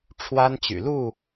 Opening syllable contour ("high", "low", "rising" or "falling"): high